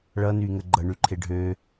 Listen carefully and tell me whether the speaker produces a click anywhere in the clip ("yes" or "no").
yes